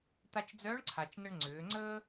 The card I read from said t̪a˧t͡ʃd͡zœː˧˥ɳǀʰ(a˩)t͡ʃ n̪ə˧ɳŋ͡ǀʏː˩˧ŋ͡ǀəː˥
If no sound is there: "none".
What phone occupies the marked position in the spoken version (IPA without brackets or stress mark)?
a˩